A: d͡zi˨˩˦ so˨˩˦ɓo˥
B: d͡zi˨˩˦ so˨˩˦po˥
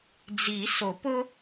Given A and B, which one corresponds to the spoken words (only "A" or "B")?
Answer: B